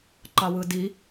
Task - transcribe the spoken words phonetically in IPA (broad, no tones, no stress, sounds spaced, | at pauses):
ǃ ɑ w ɯ d i